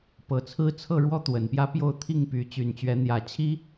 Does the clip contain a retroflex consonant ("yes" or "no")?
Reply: yes